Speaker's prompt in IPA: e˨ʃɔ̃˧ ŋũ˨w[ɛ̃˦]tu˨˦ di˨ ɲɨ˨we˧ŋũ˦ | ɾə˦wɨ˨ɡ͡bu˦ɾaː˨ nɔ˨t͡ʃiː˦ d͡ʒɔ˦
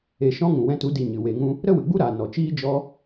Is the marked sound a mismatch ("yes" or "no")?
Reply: yes